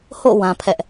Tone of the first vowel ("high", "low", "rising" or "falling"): falling